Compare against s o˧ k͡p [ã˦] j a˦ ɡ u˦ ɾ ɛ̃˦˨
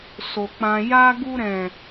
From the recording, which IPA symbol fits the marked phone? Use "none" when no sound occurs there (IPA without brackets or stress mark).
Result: ã˦